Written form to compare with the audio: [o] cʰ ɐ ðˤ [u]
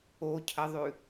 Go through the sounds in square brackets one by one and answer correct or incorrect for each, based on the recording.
correct, incorrect: ʉ

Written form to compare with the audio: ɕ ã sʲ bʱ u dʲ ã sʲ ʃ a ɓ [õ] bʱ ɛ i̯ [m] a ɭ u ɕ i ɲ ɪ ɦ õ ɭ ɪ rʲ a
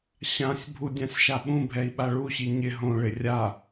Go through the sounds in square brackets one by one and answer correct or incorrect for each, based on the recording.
incorrect: ũ, incorrect: ɓ

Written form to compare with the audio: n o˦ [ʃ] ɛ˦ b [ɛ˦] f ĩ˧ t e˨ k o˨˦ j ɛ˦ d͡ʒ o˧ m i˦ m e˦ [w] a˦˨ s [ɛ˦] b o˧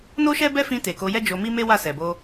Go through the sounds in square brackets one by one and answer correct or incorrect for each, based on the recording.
correct, correct, correct, incorrect: ɛ˨

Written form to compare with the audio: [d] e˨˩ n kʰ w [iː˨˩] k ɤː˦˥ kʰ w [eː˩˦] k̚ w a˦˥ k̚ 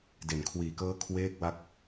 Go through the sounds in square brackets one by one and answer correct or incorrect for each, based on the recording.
correct, correct, incorrect: eː˦˥

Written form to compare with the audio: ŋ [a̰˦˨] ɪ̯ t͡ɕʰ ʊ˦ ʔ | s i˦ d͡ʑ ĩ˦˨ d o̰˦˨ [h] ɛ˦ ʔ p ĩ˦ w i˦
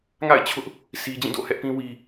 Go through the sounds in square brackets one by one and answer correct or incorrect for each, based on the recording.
correct, correct

